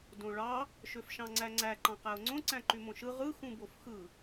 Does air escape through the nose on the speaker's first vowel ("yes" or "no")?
yes